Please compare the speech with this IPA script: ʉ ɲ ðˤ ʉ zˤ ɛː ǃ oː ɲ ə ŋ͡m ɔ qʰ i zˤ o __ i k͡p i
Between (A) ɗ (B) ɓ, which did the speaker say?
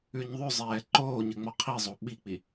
B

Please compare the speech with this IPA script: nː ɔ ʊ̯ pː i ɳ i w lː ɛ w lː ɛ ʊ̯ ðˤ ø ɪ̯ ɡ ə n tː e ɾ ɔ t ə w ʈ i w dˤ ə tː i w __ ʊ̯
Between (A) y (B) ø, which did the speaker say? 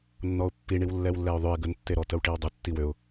B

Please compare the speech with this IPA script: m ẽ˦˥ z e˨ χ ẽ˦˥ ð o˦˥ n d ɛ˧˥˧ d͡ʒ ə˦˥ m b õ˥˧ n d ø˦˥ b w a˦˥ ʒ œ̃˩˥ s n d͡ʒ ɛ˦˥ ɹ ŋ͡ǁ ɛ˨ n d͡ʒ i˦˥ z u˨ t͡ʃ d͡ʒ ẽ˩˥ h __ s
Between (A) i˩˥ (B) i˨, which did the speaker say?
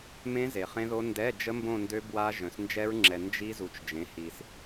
B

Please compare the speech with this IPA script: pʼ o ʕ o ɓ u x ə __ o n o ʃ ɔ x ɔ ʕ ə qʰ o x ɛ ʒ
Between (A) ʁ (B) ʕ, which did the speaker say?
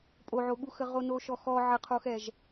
A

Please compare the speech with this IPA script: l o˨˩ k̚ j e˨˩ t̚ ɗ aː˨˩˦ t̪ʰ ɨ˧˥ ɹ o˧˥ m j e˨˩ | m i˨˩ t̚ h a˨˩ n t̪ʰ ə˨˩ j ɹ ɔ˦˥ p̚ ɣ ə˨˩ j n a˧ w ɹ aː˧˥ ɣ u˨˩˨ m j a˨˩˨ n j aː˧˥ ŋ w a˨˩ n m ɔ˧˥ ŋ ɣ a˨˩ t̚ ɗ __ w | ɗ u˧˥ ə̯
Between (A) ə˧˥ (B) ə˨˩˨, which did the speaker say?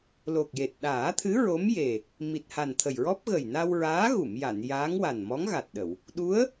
B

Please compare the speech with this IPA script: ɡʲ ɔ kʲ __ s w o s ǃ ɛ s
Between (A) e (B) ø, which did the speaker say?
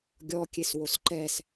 A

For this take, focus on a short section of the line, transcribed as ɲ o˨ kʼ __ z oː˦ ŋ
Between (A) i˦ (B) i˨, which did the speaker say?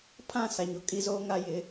A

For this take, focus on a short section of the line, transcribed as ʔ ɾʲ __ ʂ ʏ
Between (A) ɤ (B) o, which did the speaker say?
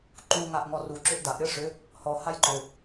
A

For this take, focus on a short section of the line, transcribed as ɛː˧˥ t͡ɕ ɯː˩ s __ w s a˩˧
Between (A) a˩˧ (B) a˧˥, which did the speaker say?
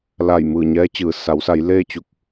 A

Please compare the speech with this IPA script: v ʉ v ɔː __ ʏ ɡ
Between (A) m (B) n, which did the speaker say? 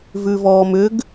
A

